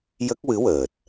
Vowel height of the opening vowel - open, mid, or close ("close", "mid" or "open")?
mid